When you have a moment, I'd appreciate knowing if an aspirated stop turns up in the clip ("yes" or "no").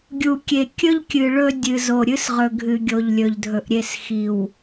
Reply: no